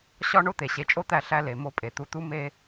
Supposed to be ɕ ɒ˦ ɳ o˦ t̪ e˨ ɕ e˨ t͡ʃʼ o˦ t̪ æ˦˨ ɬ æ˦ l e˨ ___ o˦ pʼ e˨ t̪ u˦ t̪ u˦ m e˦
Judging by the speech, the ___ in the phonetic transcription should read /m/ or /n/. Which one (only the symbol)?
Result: m